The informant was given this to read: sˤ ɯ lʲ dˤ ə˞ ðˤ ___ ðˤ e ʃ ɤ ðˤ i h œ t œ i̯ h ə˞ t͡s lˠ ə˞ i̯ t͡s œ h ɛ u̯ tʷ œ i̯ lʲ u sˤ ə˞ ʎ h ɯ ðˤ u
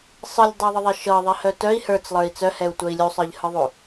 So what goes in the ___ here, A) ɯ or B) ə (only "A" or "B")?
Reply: B